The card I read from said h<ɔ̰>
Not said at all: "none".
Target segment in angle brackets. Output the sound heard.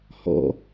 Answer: ɔ̰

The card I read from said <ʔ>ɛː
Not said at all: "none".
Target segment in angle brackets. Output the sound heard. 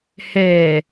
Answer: h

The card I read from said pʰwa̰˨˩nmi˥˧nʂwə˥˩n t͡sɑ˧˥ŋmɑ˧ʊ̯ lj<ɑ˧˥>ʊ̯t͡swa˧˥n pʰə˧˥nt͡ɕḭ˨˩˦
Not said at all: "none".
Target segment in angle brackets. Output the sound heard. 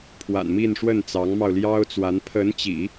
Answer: ɑ˥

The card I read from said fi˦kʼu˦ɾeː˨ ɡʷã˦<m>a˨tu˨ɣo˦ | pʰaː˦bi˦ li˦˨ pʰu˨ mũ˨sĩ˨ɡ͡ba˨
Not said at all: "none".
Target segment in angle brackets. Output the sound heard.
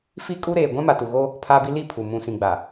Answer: m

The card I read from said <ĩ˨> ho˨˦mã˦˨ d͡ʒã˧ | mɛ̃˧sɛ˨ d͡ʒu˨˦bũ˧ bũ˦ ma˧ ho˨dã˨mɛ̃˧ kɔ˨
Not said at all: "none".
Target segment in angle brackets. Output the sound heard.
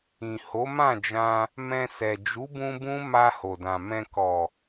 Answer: ĩ˨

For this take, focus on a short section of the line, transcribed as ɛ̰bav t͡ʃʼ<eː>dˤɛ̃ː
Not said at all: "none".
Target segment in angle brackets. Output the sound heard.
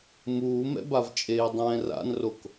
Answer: eː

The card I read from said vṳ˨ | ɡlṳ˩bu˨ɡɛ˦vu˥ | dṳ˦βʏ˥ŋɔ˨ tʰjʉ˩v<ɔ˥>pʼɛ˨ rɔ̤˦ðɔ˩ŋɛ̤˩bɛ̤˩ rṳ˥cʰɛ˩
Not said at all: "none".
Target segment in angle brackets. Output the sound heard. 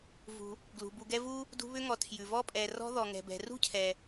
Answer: ɔ˥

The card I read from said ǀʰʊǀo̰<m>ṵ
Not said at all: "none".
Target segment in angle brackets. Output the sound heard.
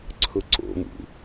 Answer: m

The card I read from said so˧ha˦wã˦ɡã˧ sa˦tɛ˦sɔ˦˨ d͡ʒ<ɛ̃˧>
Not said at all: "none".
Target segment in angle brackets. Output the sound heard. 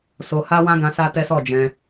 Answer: ɛ̃˧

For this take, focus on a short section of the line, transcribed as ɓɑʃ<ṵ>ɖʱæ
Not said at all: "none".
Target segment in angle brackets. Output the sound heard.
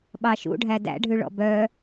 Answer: ṵ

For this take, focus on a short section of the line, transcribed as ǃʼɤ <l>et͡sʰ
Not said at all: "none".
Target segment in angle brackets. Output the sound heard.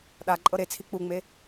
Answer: ɾ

